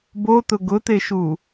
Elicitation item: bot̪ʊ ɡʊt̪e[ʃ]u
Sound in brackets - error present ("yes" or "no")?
no